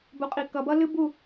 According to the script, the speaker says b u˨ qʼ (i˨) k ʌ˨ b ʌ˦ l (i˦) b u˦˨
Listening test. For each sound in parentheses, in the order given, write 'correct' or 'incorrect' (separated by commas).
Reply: correct, incorrect